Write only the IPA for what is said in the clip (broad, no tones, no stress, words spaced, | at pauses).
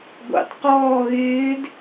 ɡʷɑ̰tqɔː ɣɪːd